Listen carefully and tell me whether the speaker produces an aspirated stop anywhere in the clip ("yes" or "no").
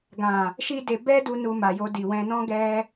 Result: no